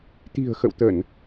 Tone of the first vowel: low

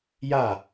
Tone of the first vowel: falling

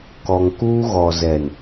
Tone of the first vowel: low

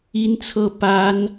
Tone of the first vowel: high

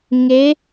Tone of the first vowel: rising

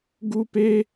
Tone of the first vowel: high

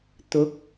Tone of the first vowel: rising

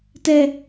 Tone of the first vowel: falling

